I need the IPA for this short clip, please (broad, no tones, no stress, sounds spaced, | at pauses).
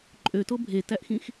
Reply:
ǃʼ ø t o bʱ e t æ ʔ x ĩ x